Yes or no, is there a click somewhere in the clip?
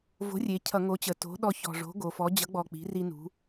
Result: no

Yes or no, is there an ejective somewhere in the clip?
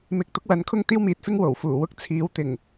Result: no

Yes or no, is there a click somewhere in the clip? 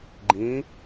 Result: yes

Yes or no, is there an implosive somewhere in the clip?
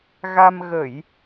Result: no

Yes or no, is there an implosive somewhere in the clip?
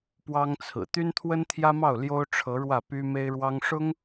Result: no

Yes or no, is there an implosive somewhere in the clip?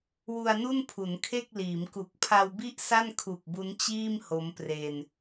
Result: no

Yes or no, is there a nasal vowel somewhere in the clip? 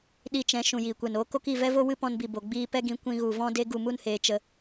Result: yes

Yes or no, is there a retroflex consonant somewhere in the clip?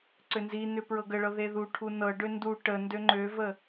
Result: yes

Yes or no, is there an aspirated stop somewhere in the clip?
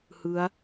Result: no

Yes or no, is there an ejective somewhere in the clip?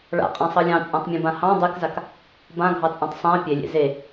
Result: yes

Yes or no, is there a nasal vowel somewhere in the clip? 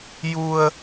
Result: no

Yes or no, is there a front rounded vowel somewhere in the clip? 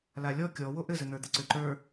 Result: yes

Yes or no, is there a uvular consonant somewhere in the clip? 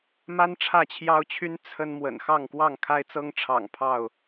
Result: no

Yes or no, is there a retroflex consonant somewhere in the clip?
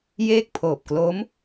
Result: no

